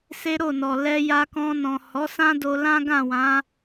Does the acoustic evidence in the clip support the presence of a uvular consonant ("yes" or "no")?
no